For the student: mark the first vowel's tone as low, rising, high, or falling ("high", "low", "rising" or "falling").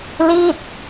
falling